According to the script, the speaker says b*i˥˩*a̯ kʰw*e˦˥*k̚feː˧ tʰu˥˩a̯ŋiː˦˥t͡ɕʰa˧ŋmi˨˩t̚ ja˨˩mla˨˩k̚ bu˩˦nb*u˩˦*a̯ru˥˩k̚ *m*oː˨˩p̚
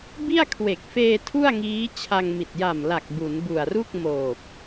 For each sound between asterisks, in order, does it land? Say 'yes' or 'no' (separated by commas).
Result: yes, no, no, yes